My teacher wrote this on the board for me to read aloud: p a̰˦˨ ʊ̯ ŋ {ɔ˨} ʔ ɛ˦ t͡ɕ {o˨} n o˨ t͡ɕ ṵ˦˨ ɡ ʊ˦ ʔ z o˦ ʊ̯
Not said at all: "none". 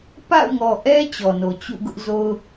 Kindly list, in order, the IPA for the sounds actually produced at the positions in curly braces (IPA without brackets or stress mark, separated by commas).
ɔ˨, ɔ˨